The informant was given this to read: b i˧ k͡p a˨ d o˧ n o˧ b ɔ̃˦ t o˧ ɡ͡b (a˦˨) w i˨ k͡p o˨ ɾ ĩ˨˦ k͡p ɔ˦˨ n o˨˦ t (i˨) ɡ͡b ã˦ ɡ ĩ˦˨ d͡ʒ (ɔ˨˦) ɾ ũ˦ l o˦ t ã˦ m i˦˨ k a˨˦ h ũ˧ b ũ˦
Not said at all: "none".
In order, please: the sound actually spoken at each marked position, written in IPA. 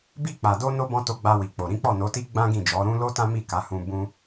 a˧, i˦, ɔ˨˦

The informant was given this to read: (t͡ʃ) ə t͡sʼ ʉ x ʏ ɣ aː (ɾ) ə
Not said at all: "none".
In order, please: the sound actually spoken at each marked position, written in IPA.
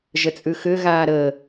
ʒ, ɾ

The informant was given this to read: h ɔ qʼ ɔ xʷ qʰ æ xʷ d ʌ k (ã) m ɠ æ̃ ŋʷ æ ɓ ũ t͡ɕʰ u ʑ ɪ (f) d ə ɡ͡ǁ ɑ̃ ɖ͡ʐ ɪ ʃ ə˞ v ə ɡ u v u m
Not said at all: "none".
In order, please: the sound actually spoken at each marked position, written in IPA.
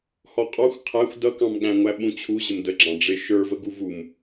ɑ̃, m

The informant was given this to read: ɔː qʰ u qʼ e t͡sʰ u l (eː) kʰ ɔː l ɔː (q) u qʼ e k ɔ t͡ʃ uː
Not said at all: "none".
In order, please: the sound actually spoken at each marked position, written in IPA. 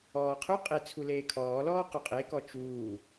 eː, q

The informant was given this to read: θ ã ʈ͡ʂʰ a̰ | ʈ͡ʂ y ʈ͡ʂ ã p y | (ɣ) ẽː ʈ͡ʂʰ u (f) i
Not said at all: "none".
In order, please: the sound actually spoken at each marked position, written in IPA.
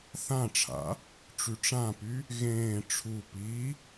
ɣ, p

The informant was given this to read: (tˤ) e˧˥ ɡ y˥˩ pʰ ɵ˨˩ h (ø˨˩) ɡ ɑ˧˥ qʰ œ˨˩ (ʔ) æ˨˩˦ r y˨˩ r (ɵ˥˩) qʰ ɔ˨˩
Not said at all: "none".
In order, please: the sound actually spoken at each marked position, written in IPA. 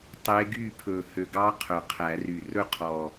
tˤ, ø˨˩, qʰ, ɵ˥˩

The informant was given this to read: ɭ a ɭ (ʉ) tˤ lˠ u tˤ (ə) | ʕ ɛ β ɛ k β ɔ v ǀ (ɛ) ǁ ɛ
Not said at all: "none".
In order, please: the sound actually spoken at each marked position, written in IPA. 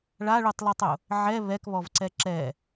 u, ʊ, ɛ

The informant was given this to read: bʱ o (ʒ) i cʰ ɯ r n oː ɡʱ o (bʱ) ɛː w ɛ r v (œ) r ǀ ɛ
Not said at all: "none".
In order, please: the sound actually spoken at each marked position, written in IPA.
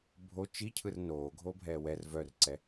t͡ʃ, bʱ, œ

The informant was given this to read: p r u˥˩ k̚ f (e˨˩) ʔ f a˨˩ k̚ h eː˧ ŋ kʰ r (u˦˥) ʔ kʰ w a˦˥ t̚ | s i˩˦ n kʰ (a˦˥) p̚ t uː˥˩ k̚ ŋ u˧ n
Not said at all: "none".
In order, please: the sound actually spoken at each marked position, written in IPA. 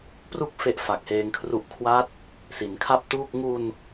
e˥˩, u˦˥, a˥˩

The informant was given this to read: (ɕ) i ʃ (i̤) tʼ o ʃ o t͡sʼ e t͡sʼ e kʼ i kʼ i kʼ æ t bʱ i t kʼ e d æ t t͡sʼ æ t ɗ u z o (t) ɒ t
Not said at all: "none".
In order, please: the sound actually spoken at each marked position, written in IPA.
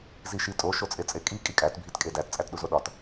z, i, ɗ

